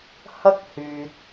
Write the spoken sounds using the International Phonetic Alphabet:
h ɐ˥ k̚ h yː˨ t̚

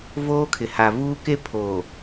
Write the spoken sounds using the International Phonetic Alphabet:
v oː˦ kʰ ɪ˨ h a˨ v uː˦ k e˦ pʰ oː˨

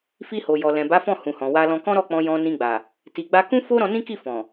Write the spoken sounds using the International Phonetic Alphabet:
f i˧ h o˨ j ɔ˨ l ɛ̃˨ b a˨˦ f ɔ̃˦˨ h ũ˨ h ɔ̃˨ w a˧ l ɔ̃˧ k ɔ̃˦ ɾ ɔ˦˨ k͡p ɔ̃˧ j ɔ̃˧ n ĩ˧ ɡ͡b a˨ | t i˨ ɡ͡b a˧ k ũ˦ f o˦ ɾ ɔ̃˧ n ĩ˦ k i˦˨ f ɔ̃˨

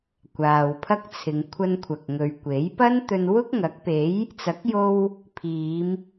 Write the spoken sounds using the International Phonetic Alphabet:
kʷ aː˨ w pʰ ɐ˥ k̚ t͡sʰ ɪ˨˧ ŋ kʷʰ ɐ˧ n kʷʰ ɐ˨ k̚ ŋ ɵ˨ ɥ kʷ e˨˥ j p ɐ˥ n t̪ ɵ˧ n w ʊ˥ k̚ ŋ ɐ˨˥ k̚ p e˨˥ j | t͡s ɐ˨˥ k̚ j o˧ w | pʰ iː˨˧ m

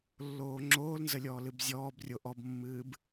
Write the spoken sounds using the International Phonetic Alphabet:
lː oː ŋ͡ǁ oː l n z ə lʲ ɔː l ɨ b zʲ ɔː b rʲ o ʔ ɔ b mː ɨː b

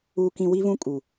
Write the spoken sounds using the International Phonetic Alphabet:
uː˦ k ĩ˦ w i˦ v ũ˦ kʼ u˨

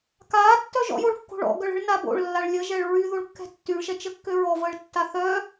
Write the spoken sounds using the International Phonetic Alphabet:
k aː tː œ ʒ ɔ̰ j o ɭ kː o̤ ɭ ɔ̰ ɡ œ ɭ ə̤ ɭ n a b o̰ ɭ lː a ɭ lʲ ə ʒ ɛ ɭ ɹ y ð o ɭ kː ɛ̤ tː y ɭ ʃ ɛ t͡ʃ ə kː ø ɹ ɔ v əː ɭ tː a θ œ

